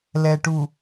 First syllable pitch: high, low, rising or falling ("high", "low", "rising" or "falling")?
low